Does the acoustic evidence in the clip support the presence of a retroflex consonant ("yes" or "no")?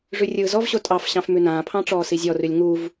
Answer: yes